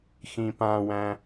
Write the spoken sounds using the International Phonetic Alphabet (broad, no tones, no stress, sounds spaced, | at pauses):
x ĩ p ã w æ̃